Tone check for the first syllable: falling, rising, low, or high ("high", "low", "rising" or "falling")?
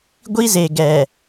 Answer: high